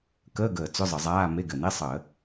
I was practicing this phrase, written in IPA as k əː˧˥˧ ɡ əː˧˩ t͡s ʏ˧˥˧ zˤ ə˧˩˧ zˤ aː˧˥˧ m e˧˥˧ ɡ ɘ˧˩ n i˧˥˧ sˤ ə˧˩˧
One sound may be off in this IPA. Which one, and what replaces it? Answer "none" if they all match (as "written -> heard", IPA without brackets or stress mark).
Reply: none